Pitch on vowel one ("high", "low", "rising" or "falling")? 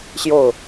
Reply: falling